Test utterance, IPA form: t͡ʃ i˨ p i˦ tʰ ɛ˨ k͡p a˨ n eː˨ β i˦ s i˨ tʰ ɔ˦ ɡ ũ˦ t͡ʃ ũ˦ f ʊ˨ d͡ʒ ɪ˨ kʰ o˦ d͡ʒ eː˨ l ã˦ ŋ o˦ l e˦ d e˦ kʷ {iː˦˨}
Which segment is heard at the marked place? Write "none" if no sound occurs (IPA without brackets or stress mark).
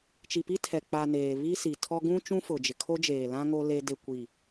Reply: i˦˨